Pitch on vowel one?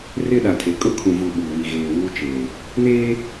high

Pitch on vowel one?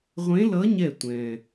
rising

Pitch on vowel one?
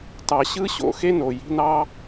low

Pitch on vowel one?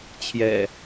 low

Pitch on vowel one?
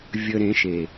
low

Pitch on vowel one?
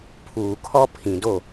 low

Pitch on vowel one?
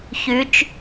rising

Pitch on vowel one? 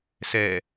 low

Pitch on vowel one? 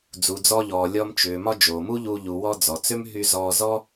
low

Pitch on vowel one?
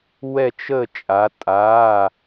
falling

